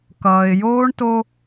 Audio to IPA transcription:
k ʌː˨ ɪ̯ j oː˦ ɳ t o˦

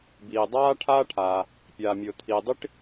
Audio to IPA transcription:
b iː˩ dˤ aː˥ ʈʰ aː˥ ʈʰ aː˩ | pʲ aː˩ mʲ ʊː˩ t̪ʰ iː˩ dˤ i˥ ʈ

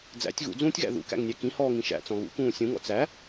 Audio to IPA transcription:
d͡z æ̰ tʲ ɣ ṵ d͡z ũː tʲ ɣ æ̰ ð ṵ k æ̰ ŋ nʲ æ k ĩ h ɔː ŋ ĩ ʃ æ̰ t͡s ɔ̃ ɣ ṵ k ũː sʲ ũ ŋ ɔ̰ t͡s æ

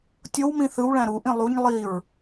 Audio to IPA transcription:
tʲ o w m ĩ θ ɯ w ɭ æ̃ ɾ u ʔ ĩ lˠ u ɲ lˠ i ɹ

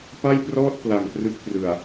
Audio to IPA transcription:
p a˥˩ j p r ɔː˥˩ t̚ p l a˨˩ ŋ p r ɯ˦˥ k̚ p r ɯ˨˩ a̯

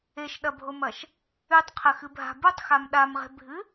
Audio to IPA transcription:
e ʃ ɗ ɐ bʱ o m ɐ ʃ | ʉ tˤ qʰ ɐ x ɨ bʱ a̤ b u tˤ x a m ɗ a m ʁ e̤ bʱ ɨ

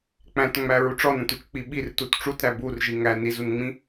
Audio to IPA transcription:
k͡p æ̃ t ŋ͡m æ ɹ u ʈ͡ʂ ɔ n æ̃ t u t͡ʃ k͡p i ɓ i r t u t ʈ͡ʂ u t ɾ æ b u r ʒ i ŋ æ n i z u n ŋ͡m ĩ

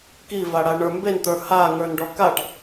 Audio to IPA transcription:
k i v a ɽ a ɳ ə˞ m b e n t̪ ə˞ h a ŋ ə˞ n ɖ ɔ k a ʈ

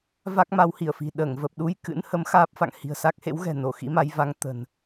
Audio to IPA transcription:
v a˦˥ k̚ m a˨˦ w h i˧˩ ə̯ f i̤˨˩ ɗ əː˧˩ ŋ v ə˨˩ p̚ ɗ u˧ j k ɨ̰˧˥ n h ə˨˦ m x aː˦˥ p̚ f a̰˧˨ ŋ h i̤˨˩ ə̯ s a˦˥ k̚ h ḛ˧˥ w ɣ ɛ̤˨˩ n o˧˩ x ḭ˧˥ m a˨˦ j v a˨˦ ŋ t̪ ə̤˨˩ n

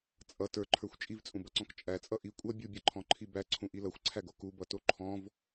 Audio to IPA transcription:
t͡sʼ ʌ t ə˞ ǃʰ ə˞ xʷ t͡ʃʼ i v t͡sʼ ũ b ʌ ǀ ɔ̃ k t͡ʃʼ æ t͡sʼ ʌ ʔ i kʷʼ ʌ bʲ u bʲ ʌ ǃʰ ɔ̃ ǃʰ i b æ ǀʰ ũ ʔ i l ʌ xʷ ǀʰ æ ɡ o k u b ʌ t o ǃʰ ɔ̃ v

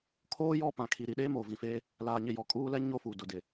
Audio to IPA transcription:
kʰ oː˦ j ɔ˦ p ã˨ kʰ i˨ ɾ i˨ ɗ eː˦ m oː˨ v ĩ˨ f eː˦ | l aː˨ ɲ ɪ˨ j ɔ˨ kʼ uː˦ l ɛ˦ ɲ o˦ f u˨ d ʊ˨ d ɪ˨

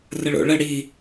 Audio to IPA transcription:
r ə ɭ o̰ ɭ ə ɽ i

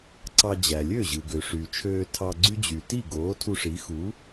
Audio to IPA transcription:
ǀ ɑ˧ d͡ʑ æ˩ lʲ ø˥˩ ʑ ɯ˩ ɡ ø˩ ʂ y˩ t͡ʃʰ øː˧ tʰ ɑ˧ ɡ͡ǀ y˥ d͡ʑ y˩ t i˥˩ ɡ oː˩˥ tʰ u˧ ʂ i˩˥ x u˩˥

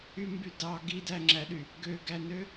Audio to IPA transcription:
y m b y d ɑ ɡ i d æ ŋ͡ǁ æ ɗ y | ɡ ø ɡ æ n ø

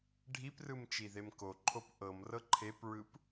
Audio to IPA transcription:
ɖʱ i p r ɯ m t͡ʃ i ð e m k o ǃʰ o p ʔ ɤ m r ɤ ǃʰ e p ɹ ɯ p

